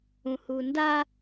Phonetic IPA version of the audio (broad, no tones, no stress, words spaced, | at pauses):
ũhunda